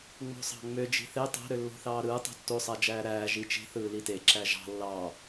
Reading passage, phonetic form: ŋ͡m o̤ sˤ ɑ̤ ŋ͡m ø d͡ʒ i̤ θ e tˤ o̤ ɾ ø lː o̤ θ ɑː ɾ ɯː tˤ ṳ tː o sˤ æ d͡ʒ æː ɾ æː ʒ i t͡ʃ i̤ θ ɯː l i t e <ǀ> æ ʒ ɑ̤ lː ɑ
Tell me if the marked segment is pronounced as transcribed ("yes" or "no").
no